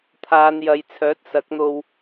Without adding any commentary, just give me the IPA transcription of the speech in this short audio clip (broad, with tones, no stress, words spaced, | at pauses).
t̪ʰaː˨˧njɐ˨˧jt͡sʰœː˨˥t̚ sɐ˨˥k̚n̪o˧w